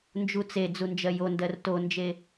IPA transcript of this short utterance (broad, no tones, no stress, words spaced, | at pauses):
nd͡ʒut͡se d͡zund͡ʒɜjondɜr tond͡ʒe